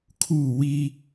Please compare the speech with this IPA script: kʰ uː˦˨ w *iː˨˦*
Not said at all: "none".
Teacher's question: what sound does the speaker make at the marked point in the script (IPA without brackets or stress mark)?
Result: iː˦